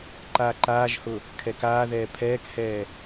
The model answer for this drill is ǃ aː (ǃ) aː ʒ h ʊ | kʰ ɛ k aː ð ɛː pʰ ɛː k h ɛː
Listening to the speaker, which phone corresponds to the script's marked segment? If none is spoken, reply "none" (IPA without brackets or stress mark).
ǃ